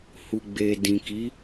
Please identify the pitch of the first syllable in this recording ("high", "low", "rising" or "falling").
low